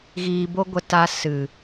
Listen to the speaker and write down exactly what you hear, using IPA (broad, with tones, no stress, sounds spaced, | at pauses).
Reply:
ɣ iː˧ b o˦ ɡʷ ə˧ t a˧ s ɨ˨